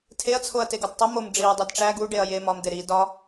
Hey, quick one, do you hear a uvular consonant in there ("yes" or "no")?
no